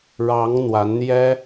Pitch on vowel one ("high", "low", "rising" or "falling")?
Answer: rising